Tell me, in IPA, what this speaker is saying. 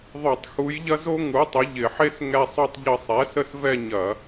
ðˤ o˧˩˧ tˤ x u˨˥ j ʎ ɐ˥ z o˥ ŋ u˨˥ tˤ ɪ˨˥ ʎ ɪ˧˩˧ ħ e˥ s ŋ ɛ˥˧ sˤ u˥˧ tˤ ʎ ə˥˧ sˤ ɛ˨˥ s ə˥˧ s v ɛ˥˧ ɲ ɐ˧˩˧

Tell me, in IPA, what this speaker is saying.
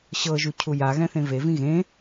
ɕ ɤ ʒ u cʰ u j a ɣ ɛ̃ θ ẽ v e v ĩ ɣ ẽ

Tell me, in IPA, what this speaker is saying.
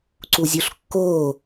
ǀ u zʲ u ɬ kː oː

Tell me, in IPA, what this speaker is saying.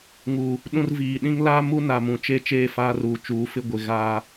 ŋ u˨ | ɗ ũ˦ r v iː˨ ɗ ĩ˦ ŋ l aː˦ m u˦ n a˨ m ũ˨ t͡ʃ e˦˨ t͡ʃ eː˦˨ f aː˦ r uː˨ t͡ʃ uː˨˦ f ɪ˦ ɡʷ ɪ˨ ɣ aː˦

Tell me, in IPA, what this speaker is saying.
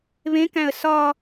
β ẽ k æ̃ ə̯ s ɒ

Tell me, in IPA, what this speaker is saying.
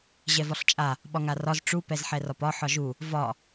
ʑ ɛ v ɒ ɬ t͡ʃʼ a | ɓ ɒ ŋ a r ɒ z ʈ͡ʂ u p ɛ z ħ ɛ r ɒ p ɒ ħ ɒ ʒ u | v ɒ

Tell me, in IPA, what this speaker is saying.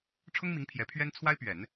ʈ͡ʂʰ ʊ˥ ŋ m i˧˥ ŋ pʰ j ɛ˧˥ pʰ ɥ ɛ˥ n t͡sʰ w a˥ ɪ̯ p ɥ ɛ˨˩˦ n

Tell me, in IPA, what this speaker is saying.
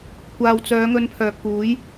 kʷ aː˨ w t͡s œː˨˧ ŋ ɵ˧ n pʰ œː˨ k̚ p uː˨˥ j

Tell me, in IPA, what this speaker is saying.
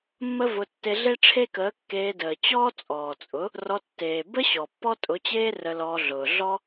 mː ə˦ v ʊ˧ tː e˧ ɮ e˦ ʈ͡ʂʰ e˦ k əː˨˦ kː eː˧ d əː˨ t͡ɕ ɔː˦ t͡sʼ ɔː˨ t͡sʼ ʊ˨˦ | r ɔ˧ tː eː˨ b ə˦ ɕ ɔ˨ pː ɔ˦ tʼ ʊ˨˦ t͡ɕ eː˦ r ə˧ l ɔː˧ ɮ ʊː˨ ɮ ɔ˦

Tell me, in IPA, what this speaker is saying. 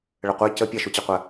ɭ ə qʷ ɛ c ə pʲ ɐ ʃ u t͡ɕ ɛ qʷ ɜ

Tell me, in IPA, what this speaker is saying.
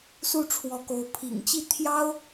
s u˥˩ ʈ͡ʂʰ w ɔ˧˥ k o˧˥ ʊ̯ pʰ ḭ˨˩ ŋ t͡ɕ i˥˩ t̪ʰ j ɑ˥ ʊ̯

